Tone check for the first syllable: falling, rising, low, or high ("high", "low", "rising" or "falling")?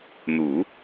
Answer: low